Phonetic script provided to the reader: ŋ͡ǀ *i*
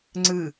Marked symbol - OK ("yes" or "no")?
no